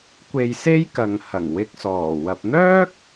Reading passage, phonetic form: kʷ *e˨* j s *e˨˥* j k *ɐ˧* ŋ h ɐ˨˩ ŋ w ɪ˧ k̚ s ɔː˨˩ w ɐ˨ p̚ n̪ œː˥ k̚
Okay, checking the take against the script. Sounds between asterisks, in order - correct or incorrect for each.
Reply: incorrect, incorrect, incorrect

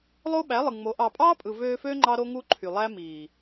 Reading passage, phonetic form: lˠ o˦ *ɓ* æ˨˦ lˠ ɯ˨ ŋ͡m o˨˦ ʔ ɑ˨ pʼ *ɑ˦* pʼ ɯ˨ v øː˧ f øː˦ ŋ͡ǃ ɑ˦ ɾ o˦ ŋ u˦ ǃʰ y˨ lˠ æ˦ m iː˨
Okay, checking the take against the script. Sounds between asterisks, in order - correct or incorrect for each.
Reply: correct, incorrect

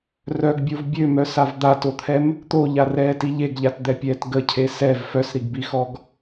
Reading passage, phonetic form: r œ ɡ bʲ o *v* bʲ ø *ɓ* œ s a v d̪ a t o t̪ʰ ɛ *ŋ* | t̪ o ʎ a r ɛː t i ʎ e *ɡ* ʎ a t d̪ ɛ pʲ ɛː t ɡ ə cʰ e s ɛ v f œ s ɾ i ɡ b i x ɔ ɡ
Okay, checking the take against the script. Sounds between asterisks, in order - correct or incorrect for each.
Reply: correct, incorrect, incorrect, correct

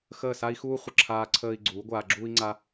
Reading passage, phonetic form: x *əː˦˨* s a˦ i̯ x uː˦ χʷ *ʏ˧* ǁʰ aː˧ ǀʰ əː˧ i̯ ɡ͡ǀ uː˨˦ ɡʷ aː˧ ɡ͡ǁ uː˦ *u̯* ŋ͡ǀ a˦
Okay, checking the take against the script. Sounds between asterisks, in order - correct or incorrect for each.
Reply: correct, incorrect, incorrect

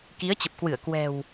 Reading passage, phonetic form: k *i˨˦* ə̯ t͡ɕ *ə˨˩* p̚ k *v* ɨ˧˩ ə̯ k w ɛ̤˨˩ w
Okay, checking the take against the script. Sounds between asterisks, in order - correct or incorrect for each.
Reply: correct, correct, incorrect

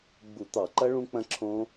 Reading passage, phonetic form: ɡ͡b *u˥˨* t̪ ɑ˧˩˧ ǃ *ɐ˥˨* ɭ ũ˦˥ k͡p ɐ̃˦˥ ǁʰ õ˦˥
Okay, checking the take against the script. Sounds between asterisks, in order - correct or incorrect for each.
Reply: incorrect, incorrect

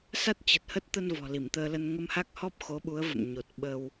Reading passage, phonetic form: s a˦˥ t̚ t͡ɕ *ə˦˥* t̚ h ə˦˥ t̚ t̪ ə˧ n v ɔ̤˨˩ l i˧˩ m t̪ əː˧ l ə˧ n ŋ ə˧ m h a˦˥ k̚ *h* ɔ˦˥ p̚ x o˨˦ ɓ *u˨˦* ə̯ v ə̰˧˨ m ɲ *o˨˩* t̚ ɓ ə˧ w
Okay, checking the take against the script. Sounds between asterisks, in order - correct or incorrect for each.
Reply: incorrect, correct, correct, correct

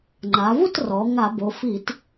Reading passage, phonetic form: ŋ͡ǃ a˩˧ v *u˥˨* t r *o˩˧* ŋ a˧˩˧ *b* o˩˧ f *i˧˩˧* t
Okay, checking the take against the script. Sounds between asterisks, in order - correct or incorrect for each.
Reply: correct, incorrect, correct, correct

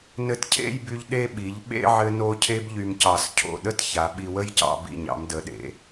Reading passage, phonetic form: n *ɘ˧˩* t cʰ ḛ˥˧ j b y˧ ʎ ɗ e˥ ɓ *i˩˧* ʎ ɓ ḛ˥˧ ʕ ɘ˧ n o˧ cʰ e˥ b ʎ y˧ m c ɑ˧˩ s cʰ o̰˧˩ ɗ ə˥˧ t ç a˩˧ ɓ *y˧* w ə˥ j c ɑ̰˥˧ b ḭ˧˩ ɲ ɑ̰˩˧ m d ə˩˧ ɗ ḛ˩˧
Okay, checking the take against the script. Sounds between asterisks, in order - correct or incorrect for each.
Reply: incorrect, correct, incorrect

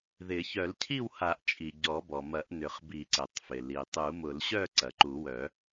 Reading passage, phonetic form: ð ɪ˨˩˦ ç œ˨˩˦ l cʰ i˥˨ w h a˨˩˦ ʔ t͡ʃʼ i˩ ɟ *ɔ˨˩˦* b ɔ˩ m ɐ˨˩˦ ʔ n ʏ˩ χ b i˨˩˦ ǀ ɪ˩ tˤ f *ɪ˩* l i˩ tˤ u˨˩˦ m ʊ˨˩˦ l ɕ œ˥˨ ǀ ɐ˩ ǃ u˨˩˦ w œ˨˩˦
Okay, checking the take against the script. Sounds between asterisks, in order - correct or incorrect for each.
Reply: correct, correct

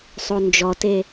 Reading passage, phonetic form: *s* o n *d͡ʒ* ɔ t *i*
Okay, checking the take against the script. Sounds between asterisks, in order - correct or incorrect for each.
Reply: incorrect, correct, incorrect

